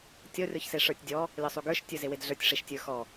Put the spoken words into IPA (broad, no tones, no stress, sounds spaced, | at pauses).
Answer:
tʲ ɔ rʲ ɔ ç s e ʂ ə˞ tʲ dʲ ɔ | lʲ ɔ sˤ u ɡ ə˞ ʃ tʲ ə˞ z e w e d ɮ ə˞ tʲ ʂ e ʃ tʲ ə˞ x ɔ